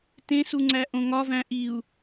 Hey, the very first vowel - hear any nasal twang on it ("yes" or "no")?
yes